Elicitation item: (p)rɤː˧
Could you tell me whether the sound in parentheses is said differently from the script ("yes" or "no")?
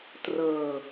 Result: yes